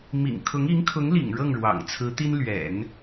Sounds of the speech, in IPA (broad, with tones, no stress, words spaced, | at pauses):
mḭ˨˩ŋkʰʊ˧˥ŋ i˧˥ŋkʰʊ˧˥ŋlḭ˨˩ŋ ɻɤ˥˩ŋɻwɑ̰˨˩ŋt͡sʰɹ̩˧˥t̪i˥n lɥɛ̰˨˩˦n